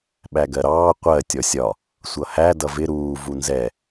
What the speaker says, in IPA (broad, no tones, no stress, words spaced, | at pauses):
ɓæɡɜɾɑː qʷɜ tʲɔsʲɒ | sʷʌhæ dʌvɪ ɾuː vunzɛ